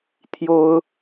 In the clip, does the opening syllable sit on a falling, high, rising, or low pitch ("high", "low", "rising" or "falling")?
high